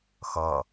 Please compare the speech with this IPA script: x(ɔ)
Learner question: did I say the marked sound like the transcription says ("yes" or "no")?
no